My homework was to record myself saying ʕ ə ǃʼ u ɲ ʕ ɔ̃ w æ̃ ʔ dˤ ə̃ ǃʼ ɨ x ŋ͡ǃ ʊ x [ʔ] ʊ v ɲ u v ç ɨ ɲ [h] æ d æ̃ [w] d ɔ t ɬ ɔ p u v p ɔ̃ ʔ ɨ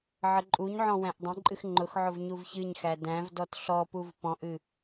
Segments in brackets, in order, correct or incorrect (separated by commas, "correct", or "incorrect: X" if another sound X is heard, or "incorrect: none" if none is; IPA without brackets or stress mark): incorrect: ʕ, incorrect: x, incorrect: v